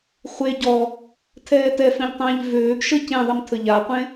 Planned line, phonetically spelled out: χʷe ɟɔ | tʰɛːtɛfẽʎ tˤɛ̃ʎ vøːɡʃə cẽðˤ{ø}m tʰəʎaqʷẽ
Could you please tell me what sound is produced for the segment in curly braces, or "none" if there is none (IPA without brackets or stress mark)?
ə